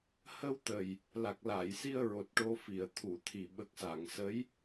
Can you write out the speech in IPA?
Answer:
hə˧wt̪ə˨˩j | la˨˩k̚ laː˨˩˨jsi˧ə̯ɹo˨˩t̚ ʈo˧fi˨˩˨ə̯t̪ʰu˨˩˨t̪ʰi˨˩ ɓə˨˩k̚sa˨˩˨ŋsə˧˥j

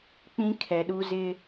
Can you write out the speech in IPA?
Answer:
k͡pĩ˦ kʰɛ˨ɗu˦zɪ˦

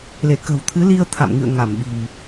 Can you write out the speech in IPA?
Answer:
le˧˩kə̤˨˩w t̪ʰɨ˨˦li˧ə̯ t̪ʰa̰˧˨m ŋɨ̰˧˨ə̯ ŋa˧˩mɓi̤˨˩m

